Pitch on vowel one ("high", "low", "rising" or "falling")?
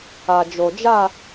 low